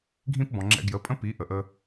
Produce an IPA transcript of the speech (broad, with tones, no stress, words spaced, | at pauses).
ɡʱĩ˦pbɔ̃˨ŋ͡ǁɛ̰˧ ɡjə˨˦pʼə̃˦ pi˨˦ʔə˨ʔə˧